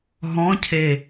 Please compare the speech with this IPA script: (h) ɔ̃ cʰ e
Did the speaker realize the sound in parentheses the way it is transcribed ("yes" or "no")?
no